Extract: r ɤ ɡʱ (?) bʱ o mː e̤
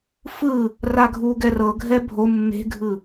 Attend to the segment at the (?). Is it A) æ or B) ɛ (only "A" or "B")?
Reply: B